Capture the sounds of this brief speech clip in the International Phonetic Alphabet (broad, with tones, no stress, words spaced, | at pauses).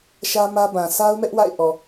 ʃä˦mä˦bã˨ sʰa˦ʊ̯mɛ˦ʔ wa̰˦˨ɪ̯ʔɔ˨